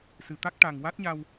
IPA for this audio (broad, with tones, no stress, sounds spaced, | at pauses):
s ɨ˨˩ t̪ a˦˥ k̚ ʈ a˨˩ ŋ w a˦˥ t̚ ɲ a˧ w